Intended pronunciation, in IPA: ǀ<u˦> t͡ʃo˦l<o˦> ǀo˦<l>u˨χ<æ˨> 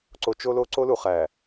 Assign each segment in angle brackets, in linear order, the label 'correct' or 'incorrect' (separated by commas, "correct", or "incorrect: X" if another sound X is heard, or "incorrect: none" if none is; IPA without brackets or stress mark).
incorrect: o˦, correct, correct, correct